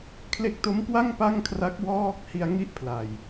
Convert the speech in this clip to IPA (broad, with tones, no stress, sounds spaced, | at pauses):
kʰ l e˦˥ k̚ t o˦˥ m k w a˥˩ ŋ p a˥˩ ŋ kʰ r a˦˥ k̚ w ɔː˥˩ k̚ h i˧ a̯ ŋ i˥˩ ʔ pʰ l a˨˩ j